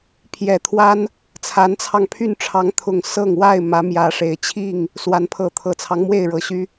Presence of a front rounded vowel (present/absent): present